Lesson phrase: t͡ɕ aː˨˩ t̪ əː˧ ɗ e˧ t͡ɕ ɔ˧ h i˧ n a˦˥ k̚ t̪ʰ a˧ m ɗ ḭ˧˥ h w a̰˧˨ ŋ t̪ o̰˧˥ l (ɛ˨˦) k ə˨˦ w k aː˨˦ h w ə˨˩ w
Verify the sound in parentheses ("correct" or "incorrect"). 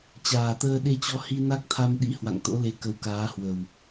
incorrect